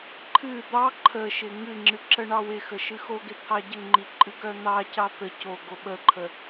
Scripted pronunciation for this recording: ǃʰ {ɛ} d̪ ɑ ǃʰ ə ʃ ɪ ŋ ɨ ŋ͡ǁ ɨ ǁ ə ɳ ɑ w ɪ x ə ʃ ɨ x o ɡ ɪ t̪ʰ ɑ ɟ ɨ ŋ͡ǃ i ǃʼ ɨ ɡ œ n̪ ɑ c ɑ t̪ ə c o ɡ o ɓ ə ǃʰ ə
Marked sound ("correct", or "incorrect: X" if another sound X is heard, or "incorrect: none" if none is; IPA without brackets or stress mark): incorrect: ɨ